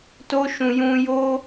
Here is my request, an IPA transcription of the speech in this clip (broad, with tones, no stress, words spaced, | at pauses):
to˦ʃũ˧ jũ˦ jo˦